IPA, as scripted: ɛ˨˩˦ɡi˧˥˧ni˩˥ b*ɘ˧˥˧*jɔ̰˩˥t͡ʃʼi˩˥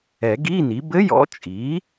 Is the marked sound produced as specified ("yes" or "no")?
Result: yes